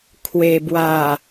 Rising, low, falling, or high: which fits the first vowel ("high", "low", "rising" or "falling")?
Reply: low